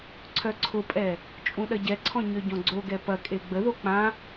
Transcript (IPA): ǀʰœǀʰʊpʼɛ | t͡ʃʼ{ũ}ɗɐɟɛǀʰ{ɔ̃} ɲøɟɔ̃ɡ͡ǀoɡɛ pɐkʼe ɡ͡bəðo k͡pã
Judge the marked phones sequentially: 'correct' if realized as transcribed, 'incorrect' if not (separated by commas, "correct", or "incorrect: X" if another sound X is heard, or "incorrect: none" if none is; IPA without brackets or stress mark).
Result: correct, correct